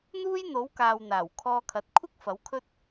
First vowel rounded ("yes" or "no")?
yes